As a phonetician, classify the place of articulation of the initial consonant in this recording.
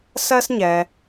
alveolar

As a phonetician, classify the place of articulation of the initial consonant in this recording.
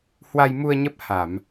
glottal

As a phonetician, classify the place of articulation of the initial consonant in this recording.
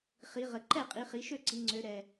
uvular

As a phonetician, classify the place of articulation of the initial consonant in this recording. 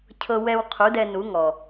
palatal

